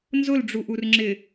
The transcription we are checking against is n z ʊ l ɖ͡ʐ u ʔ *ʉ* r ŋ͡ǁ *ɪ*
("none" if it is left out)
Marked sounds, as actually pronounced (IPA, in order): u, ɪ

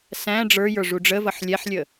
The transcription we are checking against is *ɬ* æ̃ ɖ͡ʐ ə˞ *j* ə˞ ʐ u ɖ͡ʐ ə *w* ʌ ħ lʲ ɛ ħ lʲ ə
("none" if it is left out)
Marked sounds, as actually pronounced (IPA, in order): s, j, v

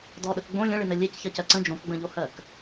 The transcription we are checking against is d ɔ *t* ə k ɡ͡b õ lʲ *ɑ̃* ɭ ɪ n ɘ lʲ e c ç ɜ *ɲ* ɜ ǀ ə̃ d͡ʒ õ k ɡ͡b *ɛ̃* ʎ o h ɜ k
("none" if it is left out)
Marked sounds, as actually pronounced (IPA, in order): ɗ, ə̃, c, ə̃

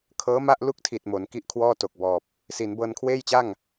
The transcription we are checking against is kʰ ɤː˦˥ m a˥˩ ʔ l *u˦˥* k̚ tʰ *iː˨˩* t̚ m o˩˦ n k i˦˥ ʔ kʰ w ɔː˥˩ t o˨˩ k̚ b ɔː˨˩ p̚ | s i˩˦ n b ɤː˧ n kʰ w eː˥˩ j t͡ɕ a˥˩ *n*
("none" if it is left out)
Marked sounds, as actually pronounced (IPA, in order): u˥˩, i˨˩, ŋ

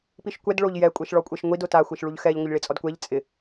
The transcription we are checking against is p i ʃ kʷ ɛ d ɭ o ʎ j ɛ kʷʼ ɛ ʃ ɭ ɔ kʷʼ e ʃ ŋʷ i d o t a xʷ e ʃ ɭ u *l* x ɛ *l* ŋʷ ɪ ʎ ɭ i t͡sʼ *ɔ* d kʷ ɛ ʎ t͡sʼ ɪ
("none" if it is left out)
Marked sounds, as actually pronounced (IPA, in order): ʎ, ʎ, ɔ

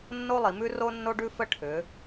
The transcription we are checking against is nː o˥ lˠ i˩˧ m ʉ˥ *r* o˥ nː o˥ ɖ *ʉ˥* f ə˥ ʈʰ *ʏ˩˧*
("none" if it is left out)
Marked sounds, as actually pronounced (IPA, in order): r, ʉ˥, ʏ˩˧

